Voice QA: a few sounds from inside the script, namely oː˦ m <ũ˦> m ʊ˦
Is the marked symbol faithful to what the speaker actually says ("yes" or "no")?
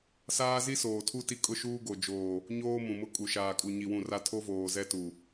no